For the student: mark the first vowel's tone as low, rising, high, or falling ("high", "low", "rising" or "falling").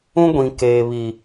high